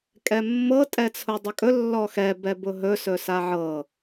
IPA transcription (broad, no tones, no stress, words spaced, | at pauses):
kʼɛmːɤ tʼɛt͡sʰʊdˤʏkʼɵ lːɔxɛ bɛbʊɦɵ sɵsaʕɤ